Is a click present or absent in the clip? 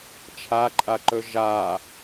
present